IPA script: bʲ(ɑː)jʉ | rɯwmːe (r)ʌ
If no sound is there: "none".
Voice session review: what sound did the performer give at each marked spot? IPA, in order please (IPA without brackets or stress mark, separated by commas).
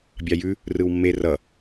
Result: ɑ, r